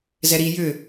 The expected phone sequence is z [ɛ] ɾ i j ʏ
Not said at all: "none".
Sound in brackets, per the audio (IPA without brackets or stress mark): ɛ